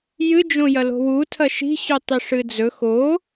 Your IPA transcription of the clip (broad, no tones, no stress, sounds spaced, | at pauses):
j ɨ d͡ʒ õ j ɐ l o̤ w u tʰ ɐ ʃ i̤ ɕ ʉ tˤ i ʂ ɨ d͡z ɵ x o